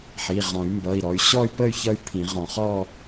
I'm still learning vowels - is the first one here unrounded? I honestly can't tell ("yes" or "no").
yes